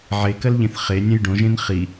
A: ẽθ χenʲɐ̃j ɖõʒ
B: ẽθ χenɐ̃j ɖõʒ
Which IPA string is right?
A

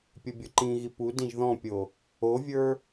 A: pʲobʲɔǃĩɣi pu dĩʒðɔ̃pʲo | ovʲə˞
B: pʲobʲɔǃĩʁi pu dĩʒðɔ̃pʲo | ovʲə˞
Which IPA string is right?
A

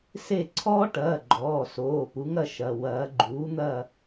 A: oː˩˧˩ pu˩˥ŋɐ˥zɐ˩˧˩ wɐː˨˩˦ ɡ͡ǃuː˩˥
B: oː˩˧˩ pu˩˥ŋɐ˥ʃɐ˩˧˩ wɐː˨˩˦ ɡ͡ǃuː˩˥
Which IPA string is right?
B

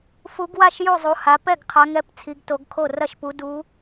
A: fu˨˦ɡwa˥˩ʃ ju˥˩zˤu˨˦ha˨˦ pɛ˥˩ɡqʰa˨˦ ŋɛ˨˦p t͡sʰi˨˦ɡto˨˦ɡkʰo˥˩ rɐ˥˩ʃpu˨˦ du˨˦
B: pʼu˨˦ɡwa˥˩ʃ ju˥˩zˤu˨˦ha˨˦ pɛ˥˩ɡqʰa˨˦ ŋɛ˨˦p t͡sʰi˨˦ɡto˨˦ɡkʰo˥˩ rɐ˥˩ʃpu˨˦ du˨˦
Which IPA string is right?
A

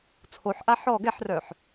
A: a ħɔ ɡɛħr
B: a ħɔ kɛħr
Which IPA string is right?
A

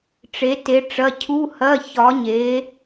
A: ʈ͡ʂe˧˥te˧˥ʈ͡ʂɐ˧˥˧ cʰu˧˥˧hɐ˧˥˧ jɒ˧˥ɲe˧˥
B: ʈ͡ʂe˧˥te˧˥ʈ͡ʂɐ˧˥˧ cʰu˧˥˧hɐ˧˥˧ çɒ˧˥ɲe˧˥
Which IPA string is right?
B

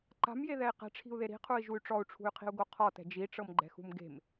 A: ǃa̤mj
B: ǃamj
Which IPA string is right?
A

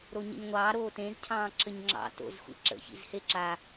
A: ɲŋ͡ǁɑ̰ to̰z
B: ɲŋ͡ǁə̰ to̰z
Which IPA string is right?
A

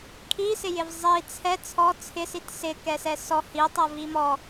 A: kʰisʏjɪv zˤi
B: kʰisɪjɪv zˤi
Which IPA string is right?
B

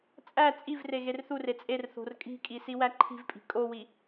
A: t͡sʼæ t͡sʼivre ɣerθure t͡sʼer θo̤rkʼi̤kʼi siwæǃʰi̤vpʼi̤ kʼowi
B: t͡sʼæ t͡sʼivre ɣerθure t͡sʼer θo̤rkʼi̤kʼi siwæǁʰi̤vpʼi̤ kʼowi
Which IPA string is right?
A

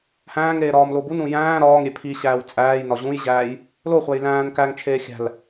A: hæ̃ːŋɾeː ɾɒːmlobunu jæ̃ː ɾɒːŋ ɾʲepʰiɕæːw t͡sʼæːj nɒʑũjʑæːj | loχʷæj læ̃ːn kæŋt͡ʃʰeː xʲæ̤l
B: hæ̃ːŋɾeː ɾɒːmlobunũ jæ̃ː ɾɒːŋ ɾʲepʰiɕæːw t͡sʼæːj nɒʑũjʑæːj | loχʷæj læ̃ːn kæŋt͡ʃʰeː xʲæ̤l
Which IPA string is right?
B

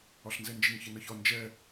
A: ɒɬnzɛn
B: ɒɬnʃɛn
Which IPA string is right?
A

